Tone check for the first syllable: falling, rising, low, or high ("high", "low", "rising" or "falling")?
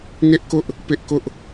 high